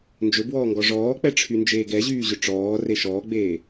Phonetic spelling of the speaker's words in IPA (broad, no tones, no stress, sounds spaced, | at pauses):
n d͡ʒ ɵ b w ɔː ŋ ɡ ɔ ʐ ɔː k͡p ɛ ʈ͡ʂʰ y n d͡ʒ eː ɡ ɛ ʑ yː ʑ ɵ ʈ͡ʂ ɔː r e ʃ ɔː ɡ͡b eː